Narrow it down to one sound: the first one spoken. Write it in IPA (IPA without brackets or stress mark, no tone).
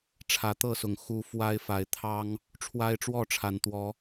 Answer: ʈ͡ʂʰ